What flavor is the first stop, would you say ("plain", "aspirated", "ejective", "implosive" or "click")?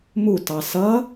plain